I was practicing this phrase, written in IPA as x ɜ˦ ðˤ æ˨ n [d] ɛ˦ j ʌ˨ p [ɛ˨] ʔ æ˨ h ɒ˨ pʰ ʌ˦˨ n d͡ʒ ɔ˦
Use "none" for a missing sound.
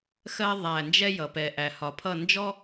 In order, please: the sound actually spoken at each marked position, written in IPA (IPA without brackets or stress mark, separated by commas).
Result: d͡ʒ, ɛ˨